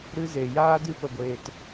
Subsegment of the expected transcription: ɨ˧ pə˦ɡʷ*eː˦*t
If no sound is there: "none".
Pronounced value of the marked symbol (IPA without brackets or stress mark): eː˦